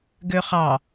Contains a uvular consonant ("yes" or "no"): yes